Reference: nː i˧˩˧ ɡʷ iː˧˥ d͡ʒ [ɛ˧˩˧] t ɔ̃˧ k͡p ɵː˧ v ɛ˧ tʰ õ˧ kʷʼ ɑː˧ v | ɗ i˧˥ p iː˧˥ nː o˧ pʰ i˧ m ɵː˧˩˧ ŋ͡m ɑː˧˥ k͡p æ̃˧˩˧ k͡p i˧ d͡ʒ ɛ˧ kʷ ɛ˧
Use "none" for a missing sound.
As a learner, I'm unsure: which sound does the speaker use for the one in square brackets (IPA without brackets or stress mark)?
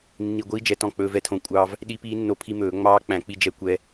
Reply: ɛ˧˩˧